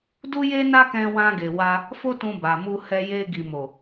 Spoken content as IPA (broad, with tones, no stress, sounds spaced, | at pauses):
d u˦ j e˦ n a˦ k ɛ̃˧ w ã˧ ɡ e˨ w a˧ | f o˦ t ũ˧ b a˨ m u˧ h ɛ˧ j e˧ ɡ i˨ m o˨